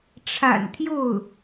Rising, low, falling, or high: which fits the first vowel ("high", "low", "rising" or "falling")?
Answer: low